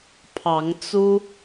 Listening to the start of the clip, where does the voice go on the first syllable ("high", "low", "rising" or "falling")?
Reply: rising